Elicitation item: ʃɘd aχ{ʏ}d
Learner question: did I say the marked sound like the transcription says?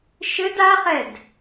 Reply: no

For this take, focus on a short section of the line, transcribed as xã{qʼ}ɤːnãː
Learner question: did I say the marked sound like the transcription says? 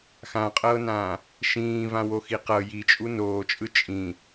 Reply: yes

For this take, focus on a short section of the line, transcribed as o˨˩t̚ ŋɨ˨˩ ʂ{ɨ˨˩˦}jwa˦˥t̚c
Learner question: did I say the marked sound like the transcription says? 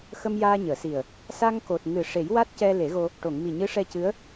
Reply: no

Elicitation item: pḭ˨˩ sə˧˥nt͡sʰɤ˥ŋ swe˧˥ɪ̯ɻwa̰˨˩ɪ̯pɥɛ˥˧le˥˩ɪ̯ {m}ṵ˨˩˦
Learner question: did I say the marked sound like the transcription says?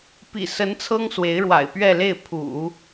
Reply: no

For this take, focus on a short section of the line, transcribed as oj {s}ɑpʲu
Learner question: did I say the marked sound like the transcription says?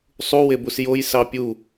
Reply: yes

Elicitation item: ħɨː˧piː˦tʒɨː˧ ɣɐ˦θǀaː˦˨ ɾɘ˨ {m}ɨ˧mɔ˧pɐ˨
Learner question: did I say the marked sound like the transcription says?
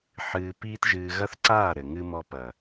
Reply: no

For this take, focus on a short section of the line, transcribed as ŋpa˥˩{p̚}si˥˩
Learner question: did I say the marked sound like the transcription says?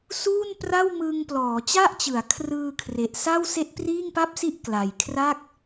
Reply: yes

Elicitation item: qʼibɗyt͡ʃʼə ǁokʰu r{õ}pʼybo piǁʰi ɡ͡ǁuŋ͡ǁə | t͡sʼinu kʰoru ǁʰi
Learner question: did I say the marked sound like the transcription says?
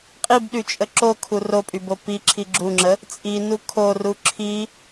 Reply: no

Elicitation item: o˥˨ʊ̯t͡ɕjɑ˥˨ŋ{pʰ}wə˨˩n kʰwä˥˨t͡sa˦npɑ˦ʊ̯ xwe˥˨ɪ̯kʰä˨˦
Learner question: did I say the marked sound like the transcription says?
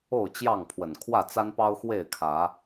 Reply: yes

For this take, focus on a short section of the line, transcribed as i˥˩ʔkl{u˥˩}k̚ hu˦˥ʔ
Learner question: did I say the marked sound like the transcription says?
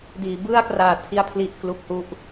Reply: yes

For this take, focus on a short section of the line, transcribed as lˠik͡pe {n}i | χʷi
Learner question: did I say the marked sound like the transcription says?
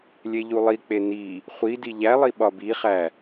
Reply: yes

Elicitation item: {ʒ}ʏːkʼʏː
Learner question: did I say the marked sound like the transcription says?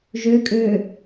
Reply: yes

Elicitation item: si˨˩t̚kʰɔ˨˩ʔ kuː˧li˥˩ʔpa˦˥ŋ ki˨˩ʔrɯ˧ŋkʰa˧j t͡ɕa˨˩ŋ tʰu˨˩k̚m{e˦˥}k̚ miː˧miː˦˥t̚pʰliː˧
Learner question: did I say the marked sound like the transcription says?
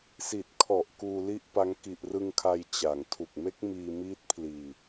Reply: yes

